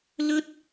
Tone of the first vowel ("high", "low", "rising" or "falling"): high